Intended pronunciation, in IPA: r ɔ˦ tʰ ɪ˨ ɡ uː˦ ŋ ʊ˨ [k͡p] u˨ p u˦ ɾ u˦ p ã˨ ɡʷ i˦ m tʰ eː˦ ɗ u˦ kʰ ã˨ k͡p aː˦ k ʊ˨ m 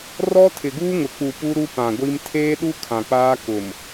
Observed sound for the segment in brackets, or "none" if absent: k͡p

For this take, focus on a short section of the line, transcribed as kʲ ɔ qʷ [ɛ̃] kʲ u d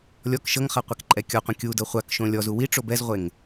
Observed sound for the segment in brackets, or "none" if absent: ẽ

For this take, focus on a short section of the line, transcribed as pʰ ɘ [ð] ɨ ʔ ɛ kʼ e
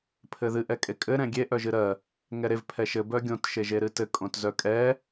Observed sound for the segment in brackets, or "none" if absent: ð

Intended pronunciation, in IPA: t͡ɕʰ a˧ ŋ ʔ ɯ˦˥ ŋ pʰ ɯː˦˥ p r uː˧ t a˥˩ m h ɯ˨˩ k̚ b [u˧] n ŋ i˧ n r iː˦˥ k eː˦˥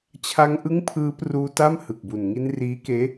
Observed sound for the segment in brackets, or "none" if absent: u˨˩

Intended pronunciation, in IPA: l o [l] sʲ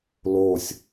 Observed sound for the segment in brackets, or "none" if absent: none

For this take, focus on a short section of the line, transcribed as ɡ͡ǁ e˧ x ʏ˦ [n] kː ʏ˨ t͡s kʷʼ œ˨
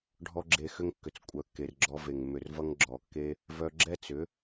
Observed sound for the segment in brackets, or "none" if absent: ŋ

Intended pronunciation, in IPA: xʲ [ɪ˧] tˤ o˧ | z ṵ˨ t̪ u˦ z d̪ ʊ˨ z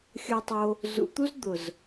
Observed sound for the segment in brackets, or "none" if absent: ə˧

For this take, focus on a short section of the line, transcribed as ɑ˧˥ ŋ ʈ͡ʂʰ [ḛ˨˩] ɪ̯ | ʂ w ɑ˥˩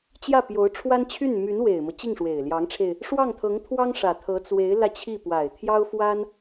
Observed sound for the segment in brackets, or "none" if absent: e˧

